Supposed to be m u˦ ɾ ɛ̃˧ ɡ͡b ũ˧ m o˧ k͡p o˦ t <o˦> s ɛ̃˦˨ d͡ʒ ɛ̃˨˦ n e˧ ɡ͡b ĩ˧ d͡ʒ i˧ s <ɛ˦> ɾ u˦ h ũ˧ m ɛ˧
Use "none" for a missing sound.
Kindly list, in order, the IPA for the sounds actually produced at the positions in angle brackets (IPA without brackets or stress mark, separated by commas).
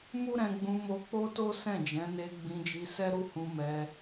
o˦, ɛ˦